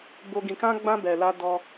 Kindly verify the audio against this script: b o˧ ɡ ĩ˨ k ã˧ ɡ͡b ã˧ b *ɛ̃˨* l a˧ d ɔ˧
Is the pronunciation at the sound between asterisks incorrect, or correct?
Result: incorrect